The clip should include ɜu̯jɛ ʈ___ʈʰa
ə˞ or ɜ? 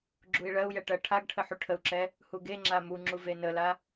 ɜ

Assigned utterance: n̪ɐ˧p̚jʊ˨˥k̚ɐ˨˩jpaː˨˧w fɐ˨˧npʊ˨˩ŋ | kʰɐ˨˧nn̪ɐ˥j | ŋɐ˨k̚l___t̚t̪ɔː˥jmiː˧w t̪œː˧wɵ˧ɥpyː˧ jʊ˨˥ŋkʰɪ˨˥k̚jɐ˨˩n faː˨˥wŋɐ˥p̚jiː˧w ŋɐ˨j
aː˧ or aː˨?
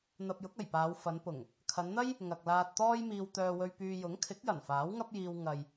aː˧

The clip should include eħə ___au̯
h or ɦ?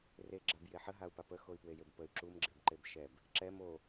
ɦ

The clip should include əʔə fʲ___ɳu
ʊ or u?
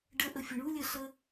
ʊ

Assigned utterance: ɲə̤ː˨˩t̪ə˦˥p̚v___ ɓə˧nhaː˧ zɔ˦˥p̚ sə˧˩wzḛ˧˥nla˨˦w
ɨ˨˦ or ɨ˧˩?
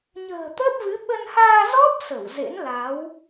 ɨ˨˦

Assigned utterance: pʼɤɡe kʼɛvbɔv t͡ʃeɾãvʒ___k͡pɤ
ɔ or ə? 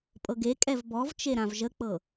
ə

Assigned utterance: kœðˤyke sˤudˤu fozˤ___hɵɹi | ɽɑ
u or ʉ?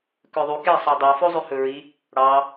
ʉ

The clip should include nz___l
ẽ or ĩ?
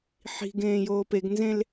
ẽ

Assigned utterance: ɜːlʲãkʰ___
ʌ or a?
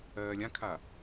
a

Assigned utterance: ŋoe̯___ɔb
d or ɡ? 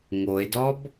d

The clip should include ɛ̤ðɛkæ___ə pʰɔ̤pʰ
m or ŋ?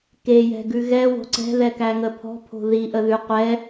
ŋ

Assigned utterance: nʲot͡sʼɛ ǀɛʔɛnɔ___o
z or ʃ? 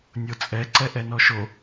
ʃ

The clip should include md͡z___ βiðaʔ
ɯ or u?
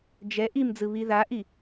ɯ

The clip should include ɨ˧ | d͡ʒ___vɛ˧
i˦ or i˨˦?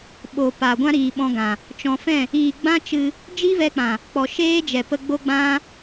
i˦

